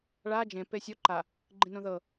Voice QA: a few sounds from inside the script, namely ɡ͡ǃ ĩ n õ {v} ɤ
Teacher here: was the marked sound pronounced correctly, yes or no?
no